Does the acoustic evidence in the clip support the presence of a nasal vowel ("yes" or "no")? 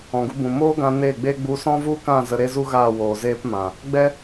yes